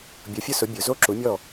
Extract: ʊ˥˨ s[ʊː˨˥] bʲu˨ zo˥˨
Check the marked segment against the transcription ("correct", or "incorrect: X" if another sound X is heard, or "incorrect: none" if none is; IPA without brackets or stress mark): incorrect: ʊ˨˥